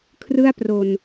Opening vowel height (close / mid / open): close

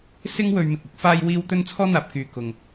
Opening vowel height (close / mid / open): close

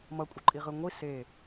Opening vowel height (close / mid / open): mid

